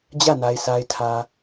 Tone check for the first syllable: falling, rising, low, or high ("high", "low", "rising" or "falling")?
falling